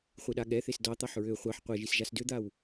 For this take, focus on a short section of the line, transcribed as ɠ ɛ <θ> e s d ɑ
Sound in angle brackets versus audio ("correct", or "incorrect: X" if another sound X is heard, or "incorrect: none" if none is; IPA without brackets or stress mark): correct